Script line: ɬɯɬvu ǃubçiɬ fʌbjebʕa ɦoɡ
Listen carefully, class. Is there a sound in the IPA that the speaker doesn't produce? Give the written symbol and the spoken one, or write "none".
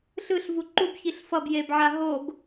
none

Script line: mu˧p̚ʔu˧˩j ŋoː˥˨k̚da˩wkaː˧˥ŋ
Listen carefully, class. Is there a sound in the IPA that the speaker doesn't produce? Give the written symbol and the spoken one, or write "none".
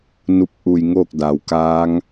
m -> n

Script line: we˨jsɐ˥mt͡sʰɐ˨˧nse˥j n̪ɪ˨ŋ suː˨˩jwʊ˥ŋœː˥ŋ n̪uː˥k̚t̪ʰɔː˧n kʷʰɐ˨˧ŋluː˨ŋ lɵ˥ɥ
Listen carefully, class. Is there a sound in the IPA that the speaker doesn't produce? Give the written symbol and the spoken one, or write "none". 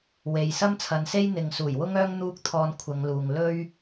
none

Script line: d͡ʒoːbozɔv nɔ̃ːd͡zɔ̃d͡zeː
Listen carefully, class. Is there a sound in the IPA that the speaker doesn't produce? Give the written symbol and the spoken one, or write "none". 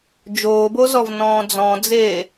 none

